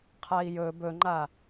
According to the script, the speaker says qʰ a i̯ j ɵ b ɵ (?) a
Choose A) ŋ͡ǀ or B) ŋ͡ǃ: B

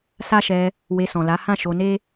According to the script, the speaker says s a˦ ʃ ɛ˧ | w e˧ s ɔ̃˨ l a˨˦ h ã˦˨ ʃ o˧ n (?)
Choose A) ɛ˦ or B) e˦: B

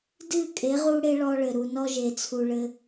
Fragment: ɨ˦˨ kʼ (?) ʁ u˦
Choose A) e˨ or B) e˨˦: B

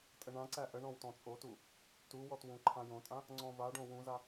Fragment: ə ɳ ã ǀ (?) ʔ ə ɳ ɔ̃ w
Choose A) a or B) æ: B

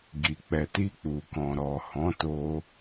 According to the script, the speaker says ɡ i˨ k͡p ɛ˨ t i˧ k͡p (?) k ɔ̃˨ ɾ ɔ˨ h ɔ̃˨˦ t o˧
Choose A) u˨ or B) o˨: A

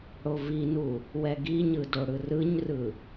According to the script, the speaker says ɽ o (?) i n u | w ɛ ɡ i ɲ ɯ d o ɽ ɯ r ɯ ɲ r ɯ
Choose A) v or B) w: A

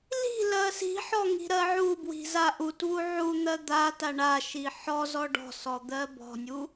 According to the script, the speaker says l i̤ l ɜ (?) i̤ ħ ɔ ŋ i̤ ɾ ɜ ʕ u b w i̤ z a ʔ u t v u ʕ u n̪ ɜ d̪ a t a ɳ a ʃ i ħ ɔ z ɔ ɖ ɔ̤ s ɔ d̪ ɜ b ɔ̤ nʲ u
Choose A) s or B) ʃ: A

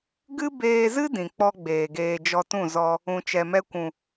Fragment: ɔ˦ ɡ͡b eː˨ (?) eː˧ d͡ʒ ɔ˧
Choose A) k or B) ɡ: B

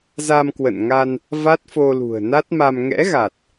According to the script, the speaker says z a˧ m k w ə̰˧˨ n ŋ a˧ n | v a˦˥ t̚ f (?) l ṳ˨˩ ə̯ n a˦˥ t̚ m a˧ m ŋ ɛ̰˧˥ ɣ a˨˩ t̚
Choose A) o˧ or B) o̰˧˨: A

